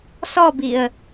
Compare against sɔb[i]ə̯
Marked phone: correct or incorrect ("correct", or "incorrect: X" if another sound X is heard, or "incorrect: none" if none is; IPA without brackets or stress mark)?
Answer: correct